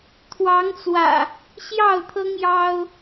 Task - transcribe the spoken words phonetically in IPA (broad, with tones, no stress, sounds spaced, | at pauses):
t̪ʰ w ɑ˨˦ ŋ t͡s w ä̰˨˩ | ɕ j ɑ˥˨ ʊ̯ t̪ʰ ɤ˦ ŋ j ɑ˦ ʊ̯